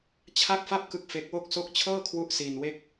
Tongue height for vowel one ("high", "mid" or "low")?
low